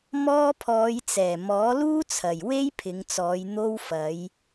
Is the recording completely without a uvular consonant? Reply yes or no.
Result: yes